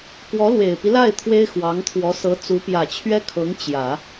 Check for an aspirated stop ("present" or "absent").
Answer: present